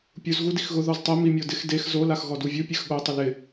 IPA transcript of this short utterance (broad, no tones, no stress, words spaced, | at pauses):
pʲuz ɣudixɣʊ ðɔztˤɛ mimʲɔdɪx dex zo laxɣɔduvʲu pʲɛxɠo tˤʊlɪ